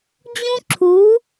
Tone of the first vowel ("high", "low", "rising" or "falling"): high